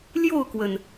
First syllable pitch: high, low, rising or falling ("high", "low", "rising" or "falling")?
falling